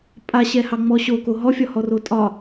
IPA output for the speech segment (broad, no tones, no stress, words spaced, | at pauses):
pʼaɕɛhɑŋ͡mɔ ɕoko ɦɔfʲɒhɔro tʼɒ